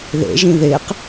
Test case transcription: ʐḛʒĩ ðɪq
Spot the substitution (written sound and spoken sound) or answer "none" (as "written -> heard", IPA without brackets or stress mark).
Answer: ʐ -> ð